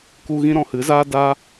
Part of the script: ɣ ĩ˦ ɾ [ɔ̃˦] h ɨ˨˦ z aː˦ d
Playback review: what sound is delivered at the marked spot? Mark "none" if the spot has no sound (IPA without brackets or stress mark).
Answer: ɔ̃˧